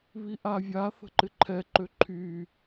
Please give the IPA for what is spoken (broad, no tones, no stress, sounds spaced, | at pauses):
β i ʔ a vʲ a θ ə̤ ǃ ɪ ǃʰ ɛ ǃ ø ǃʰ y